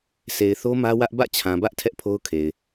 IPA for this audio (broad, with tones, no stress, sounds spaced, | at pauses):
s e˨ ɪ̯ θ o˦ m ä˦ w ä˦ ʔ b ä̰˦˨ t͡ɕʰ ã˨ b ä˦ ʔ tʰ ɛ˦ ʔ pʰ o˦ ʊ̯ kʰ e˨ ɪ̯